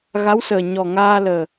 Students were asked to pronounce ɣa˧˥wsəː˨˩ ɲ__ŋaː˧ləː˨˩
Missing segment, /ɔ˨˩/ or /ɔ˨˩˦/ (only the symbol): ɔ˨˩